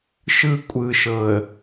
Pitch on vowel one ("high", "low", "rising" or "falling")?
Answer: high